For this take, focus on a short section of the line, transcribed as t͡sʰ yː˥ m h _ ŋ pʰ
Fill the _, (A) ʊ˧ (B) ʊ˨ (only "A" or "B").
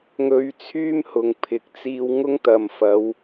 B